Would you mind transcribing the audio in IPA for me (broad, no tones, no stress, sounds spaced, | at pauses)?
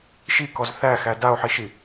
ʃ i k ɔ z θ æ x æ d a o̯ ħ i ʃ i